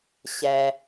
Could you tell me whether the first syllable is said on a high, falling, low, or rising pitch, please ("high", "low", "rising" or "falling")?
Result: low